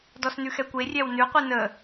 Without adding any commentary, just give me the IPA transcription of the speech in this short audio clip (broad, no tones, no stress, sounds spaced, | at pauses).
d ɔ s n ʉ x ɛ kʷ e rʲ ɛ w n ʉ qʷ ɨ n ə